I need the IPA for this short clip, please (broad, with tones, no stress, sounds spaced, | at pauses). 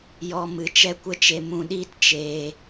j ɔ˧ m ɨ˨ t͡ʃ ɛ˦ kʷ ə˦ t͡ʃ e˧ m ũ˧ ɗ iː˦ t t͡ʃ eː˧